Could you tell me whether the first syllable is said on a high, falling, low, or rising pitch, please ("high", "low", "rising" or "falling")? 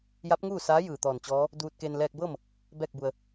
rising